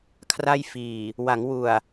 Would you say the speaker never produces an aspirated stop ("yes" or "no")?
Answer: no